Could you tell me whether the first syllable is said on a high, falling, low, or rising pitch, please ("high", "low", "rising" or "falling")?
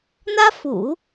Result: high